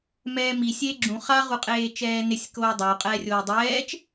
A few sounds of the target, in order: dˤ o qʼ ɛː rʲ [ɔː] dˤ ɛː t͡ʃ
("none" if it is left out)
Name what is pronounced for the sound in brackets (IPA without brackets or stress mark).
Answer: oː